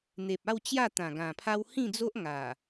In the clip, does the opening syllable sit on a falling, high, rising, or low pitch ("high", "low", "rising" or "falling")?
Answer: low